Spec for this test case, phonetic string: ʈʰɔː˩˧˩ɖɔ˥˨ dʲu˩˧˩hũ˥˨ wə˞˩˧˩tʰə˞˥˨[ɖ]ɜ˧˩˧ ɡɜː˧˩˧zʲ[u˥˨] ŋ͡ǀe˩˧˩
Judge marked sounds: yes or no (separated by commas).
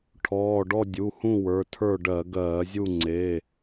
yes, yes